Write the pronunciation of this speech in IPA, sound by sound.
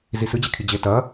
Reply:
z i s ɨ d͡ʑ e kʰ i d͡ʑ e t ɐ

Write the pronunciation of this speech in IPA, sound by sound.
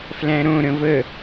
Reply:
f l æ̃ ɾ õ ɾ ə̃ v ə

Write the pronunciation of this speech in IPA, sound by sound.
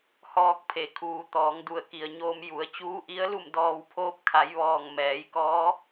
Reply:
h ɔː˧ k̚ pʰ e˩ kʰ uː˩˧ t̪ ɔː˩˧ ŋ d u˧˩ ə̯ k i˩ ə̯ ɲ oː˧ m j u˩˧ ə̯ t͡ɕ uː˧˥ ʔ i˧˥ ə̯ l u˥˨ m d ɔː˧ w pʰ oː˧˥ p̚ kʰ a˩˧ j ʋ ɔː˧˩ ŋ m ɛː˩˧ j k ɔː˧˥

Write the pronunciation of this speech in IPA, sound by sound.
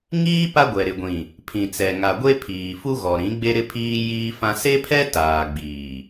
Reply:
ŋ iː˦ p a˦ ɡʷ ɛ˨ ɾ ɪ˨ ɡʷ ĩ˨ | pʰ ĩ˨ t͡s ɛ˨ ŋ a˨ ɡʷ e˦ pʰ iː˨ f u˦ ɣ ɔ˨ ɾ ĩ˨˦ ɡ͡b e˦ ɾ ɪ˦ pʰ iː˦ j iː˦ f ã˦ s e˦ pʰ ɛ˦ t aː˨ ɡ͡b iː˨

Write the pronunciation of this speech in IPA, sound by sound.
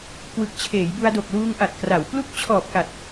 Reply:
k w ɯ˨˩ k̚ t͡ɕʰ eː˩˦ j b u˧ a̯ d o˨˩ k̚ l uː˧ ŋ ʔ a˨˩ t̚ k r a˩˦ w p l u˦˥ k̚ t͡ɕʰ ɔː˨˩ p̚ k a˨˩ t̚

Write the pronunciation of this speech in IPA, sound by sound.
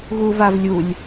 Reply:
ɣ u v a v lʲ u lʲ

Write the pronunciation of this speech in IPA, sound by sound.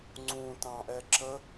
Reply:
ŋ͡ǀ ũ t ɑ̃ ʔ ɛ ǁ ə

